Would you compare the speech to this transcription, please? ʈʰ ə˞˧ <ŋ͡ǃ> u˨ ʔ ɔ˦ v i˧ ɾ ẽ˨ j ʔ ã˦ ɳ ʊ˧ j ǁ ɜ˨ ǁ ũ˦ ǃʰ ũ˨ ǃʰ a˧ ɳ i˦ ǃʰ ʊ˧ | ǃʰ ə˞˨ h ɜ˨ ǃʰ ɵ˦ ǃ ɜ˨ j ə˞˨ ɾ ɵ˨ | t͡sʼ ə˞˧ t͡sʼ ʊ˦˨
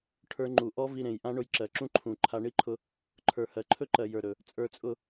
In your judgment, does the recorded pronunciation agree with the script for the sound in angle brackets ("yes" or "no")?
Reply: yes